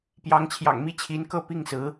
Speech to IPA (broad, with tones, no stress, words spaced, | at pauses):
pjɑ˧˥ŋt͡ɕʰjɑ̰˨˩ŋmi˥˩ t͡ɕʰi˧˥nkɤ˥˧pi˥˩ŋsɹ̩˧˥